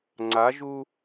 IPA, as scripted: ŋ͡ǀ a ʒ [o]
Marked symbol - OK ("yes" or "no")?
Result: no